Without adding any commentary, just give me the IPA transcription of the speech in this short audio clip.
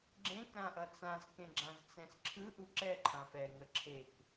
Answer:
ɡ͡ǁ ẽ k ɾ ã ʔ ʌ t͡s ã z k ẽ ɡ͡ǁ ã z t͡s ɛ̃ s ǁʰ ɯ ʔ u ǁ ɛ ǃʰ ã f ɛ ŋ ə ǁʰ e k

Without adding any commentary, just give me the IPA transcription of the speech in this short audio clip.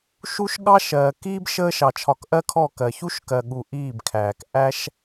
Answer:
ʃ u˦ ʃ ɠ ɑ˦ ʃ ɜː˨ k iː˦ b ʃ əː˧ ʃ ɑ˨ t͡ʃʰ ɒ˨ k ʔ ɜ˧ kʰ ɔ˦˨ k ɜ˨ ç u˦ ʃ k ɜ˨ ɠ u˨ ʔ iː˦˨ b kʰ æː˨ k ʔ æ˦ ʃ

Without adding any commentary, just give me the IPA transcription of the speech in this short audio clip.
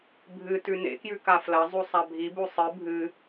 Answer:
bʱ ɨ t ʉ n ḛ k j ʉ k a f l ɐ zˤ u sˤ a bʱ i b u sˤ ɨ bʱ ɨ

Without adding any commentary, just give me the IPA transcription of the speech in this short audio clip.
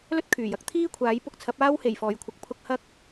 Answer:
l ɵ˥ t̚ kʰ yː˨˩ j ɐ˨˥ k̚ t̪ʰ iː˥ kʷʰ aː˨˥ j p ʊ˧ k̚ t͡sʰ ɐ˨˥ p̚ aː˥ w h e˨˩ j f ɔː˨˩ j kʷʰ ɐ˨ k̚ pʰ ʊ˧ k̚ h ɐ˥ k̚

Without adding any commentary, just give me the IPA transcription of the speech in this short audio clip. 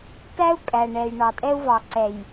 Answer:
t æ˦ u̯ kʼ æ˨ ɳ ɛ˨ j ɳ ɑ˨ tʼ ɛ˦ u̯ v ɑ˨ ǀ ɛ˨ j

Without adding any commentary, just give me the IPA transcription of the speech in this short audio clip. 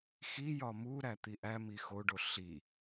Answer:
x i j ɒ m u ɾ æ t̪ i ʔ æ m i x o ɖ o ɬ i

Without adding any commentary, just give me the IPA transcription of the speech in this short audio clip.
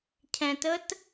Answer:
cʰ ɛ̃ t ə t

